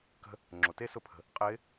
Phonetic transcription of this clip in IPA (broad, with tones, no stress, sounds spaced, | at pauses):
k ə̤˧ | ŋ͡ǁ o˩ t e˥ s ʊ˧˥ pʰ ə̤˩ | qʼ ɪː˧˥